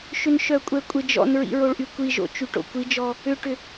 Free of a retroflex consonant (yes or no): no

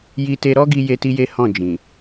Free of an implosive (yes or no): yes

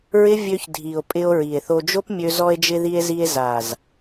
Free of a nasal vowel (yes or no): yes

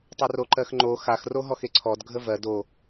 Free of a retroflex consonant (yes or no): yes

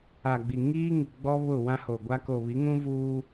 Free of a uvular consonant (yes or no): yes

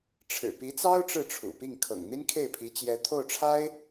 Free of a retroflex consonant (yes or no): no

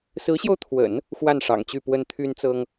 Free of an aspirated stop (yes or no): no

